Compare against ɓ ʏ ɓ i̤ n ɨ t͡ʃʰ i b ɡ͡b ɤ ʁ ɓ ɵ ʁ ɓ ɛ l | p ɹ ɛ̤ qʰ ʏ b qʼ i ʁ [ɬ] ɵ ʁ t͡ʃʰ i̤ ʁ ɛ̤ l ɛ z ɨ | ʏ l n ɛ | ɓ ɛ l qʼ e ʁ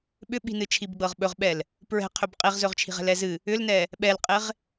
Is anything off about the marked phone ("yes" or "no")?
yes